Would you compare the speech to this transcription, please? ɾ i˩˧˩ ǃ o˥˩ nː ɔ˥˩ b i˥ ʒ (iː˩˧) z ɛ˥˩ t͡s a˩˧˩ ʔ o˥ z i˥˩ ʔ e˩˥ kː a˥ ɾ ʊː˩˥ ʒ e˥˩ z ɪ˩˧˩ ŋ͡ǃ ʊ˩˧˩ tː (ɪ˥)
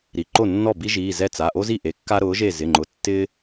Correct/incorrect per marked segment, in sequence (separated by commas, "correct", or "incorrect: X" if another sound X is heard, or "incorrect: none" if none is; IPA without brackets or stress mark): incorrect: iː˩˧˩, correct